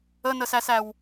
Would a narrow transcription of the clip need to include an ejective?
no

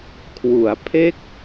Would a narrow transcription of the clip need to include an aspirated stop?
yes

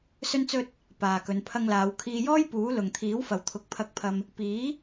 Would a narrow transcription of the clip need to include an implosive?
no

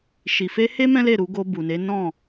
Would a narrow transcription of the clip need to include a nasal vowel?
yes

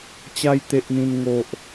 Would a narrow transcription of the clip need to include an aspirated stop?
no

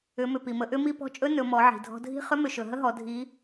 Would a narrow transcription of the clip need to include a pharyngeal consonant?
yes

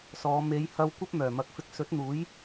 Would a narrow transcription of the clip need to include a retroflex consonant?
no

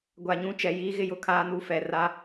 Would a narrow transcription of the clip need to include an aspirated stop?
yes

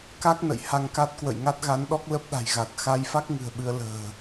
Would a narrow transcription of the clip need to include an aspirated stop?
no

